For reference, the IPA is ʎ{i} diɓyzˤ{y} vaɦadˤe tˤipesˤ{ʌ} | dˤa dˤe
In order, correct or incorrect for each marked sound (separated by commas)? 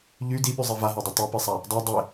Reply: incorrect, incorrect, incorrect